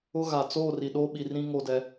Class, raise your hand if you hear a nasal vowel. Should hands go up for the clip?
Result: yes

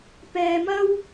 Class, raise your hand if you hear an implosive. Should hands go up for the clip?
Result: no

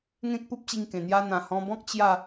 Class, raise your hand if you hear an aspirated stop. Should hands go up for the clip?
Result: no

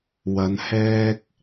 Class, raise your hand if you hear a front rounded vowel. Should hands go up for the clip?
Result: no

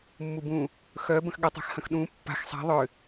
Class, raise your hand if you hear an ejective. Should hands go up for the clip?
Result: no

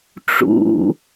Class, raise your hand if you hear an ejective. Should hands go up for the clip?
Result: no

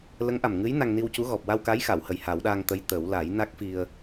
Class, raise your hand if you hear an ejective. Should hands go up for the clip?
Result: no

